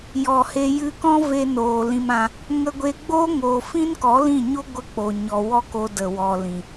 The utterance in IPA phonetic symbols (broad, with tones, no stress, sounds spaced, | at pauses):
j ɔ˨ h e˧ j ɨ˧ k ɔ̃˦ v e˧ n oː˨ l ĩ˧ m ã˧ | ŋ ə˧ ɡʷ e˧ ɡ͡b oː˦ ŋ oː˨ f ĩ˦ n k ɔ˨˦ l ĩ˦˨ ɲ o˦ ɡʷ ə˧ k͡p o˨ ɲ ɔ˨ w ɔ˦ k o˧ d ə˨ w ɔ˨ l ĩ˨